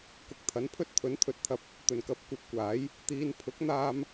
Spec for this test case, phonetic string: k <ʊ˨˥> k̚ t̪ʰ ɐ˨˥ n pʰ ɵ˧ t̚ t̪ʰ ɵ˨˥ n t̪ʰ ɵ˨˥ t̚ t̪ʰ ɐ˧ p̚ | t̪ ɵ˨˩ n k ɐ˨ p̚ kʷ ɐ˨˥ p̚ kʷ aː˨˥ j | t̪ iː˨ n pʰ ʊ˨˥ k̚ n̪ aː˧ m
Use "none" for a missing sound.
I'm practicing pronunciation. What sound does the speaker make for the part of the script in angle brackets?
ʊ˨˥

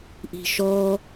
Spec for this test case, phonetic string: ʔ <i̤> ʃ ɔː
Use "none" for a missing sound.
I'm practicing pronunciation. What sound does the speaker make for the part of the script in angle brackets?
i̤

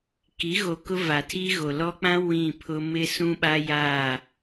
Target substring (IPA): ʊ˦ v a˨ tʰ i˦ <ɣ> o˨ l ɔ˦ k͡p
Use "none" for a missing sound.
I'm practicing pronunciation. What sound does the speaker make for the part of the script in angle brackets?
ɣ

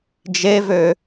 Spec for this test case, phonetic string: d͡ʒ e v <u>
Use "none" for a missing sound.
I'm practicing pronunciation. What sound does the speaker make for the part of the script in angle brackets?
ø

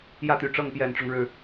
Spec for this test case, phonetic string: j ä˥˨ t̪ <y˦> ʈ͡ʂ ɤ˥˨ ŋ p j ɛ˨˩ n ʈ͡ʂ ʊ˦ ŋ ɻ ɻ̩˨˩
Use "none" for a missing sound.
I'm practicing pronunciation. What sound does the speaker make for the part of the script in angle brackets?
y˨˩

